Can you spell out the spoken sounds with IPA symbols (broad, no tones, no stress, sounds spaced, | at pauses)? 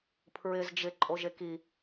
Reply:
pʰ ɹ ɪ z d͡ʒ ɪ ǃʼ o ʒ e k i